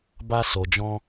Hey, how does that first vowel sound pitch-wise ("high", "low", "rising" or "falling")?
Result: high